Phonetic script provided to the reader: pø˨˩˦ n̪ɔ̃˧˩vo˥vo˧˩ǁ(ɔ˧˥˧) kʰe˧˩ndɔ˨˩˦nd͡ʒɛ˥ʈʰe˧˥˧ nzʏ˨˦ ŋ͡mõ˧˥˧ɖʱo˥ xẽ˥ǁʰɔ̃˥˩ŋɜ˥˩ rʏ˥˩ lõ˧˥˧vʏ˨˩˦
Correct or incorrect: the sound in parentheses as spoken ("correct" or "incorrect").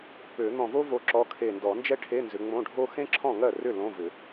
incorrect